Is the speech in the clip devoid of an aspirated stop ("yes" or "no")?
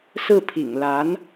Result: no